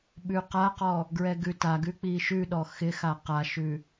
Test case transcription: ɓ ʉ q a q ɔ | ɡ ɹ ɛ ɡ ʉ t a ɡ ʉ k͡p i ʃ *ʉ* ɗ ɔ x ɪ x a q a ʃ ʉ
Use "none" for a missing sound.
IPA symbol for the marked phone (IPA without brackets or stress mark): ʉ